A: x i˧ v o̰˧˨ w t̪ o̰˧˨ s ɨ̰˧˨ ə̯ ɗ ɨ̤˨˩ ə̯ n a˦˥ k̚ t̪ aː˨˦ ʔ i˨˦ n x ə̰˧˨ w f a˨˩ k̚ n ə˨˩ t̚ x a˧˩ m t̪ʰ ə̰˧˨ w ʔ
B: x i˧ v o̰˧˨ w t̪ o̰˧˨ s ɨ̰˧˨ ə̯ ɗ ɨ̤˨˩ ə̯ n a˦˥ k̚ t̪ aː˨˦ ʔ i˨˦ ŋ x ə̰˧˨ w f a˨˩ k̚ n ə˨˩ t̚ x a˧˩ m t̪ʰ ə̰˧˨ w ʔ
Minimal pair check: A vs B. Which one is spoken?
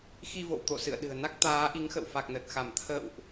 B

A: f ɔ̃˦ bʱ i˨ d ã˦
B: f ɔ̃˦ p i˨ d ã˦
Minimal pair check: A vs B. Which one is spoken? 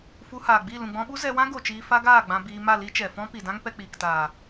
B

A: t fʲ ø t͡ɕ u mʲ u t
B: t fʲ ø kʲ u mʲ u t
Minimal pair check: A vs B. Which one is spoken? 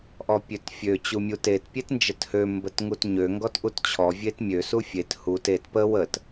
A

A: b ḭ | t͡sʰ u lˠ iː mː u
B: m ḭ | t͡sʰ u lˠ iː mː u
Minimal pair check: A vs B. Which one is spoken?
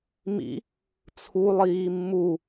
B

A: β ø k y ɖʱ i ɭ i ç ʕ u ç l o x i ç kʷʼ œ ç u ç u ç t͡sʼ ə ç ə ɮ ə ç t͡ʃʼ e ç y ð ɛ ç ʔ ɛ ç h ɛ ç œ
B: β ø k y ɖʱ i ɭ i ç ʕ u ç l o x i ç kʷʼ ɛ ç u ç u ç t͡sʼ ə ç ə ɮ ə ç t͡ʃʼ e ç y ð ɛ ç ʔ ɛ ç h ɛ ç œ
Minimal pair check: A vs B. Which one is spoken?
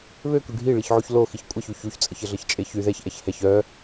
B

